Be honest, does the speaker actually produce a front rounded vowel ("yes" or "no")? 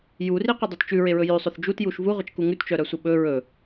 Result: yes